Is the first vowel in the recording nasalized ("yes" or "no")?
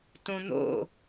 yes